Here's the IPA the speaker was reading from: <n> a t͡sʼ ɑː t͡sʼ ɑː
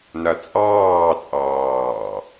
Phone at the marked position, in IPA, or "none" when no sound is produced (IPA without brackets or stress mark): n